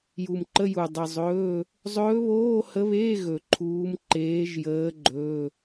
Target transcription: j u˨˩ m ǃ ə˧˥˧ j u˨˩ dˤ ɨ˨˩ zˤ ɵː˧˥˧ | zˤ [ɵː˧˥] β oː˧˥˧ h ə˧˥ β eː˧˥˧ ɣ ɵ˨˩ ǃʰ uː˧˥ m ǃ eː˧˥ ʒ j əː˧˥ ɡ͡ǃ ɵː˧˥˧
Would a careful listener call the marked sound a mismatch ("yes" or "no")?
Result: no